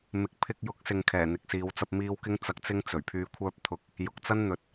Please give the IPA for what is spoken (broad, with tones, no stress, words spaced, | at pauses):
mɪ˨˥k̚ pʰɪ˧k̚jʊ˨˥k̚sɪ˨ŋ kʰɛː˨˩n̪ɪ˨k̚siː˨˧w t͡sɐ˧p̚miː˧wkɪ˥ŋ t͡sɐ˧k̚t͡sɪ˥ŋ t͡sɵ˨˩ɥ pʰyː˧kʷʰœː˥p̚t̪ʰʊ˧k̚ | jʊ˨k̚t͡sɐ˥n n̪ɵ˨t̚